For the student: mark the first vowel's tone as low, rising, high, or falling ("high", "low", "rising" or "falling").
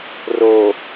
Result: low